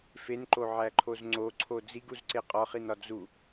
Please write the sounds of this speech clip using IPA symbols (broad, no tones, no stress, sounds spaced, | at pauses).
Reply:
f e n ǃ o ʕ æ ǃʰ o z ŋ͡ǀ o ǀʰ o d͡z i ɡ u z ǀ e qʼ ɒ χ i n ɒ d͡z u